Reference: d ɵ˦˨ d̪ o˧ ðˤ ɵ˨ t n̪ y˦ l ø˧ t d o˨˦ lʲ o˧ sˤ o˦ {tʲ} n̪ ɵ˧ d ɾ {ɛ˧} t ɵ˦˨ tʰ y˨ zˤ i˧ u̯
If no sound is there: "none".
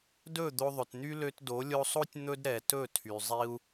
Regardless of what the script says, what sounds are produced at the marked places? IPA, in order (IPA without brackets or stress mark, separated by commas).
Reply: tʲ, ɛ˨